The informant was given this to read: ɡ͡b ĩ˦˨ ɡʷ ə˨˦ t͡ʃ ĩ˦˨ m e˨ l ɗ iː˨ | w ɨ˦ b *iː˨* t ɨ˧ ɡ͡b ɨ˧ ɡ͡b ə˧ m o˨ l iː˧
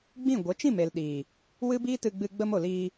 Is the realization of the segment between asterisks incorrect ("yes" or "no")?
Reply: yes